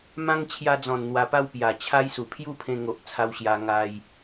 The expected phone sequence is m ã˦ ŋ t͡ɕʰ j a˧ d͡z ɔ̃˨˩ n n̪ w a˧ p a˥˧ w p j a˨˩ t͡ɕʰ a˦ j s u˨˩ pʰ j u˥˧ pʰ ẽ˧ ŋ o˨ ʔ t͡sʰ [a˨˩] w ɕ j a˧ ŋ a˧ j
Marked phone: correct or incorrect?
incorrect